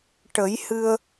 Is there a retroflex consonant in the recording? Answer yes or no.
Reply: yes